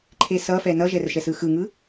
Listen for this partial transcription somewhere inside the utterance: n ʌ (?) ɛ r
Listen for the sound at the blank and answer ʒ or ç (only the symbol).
ʒ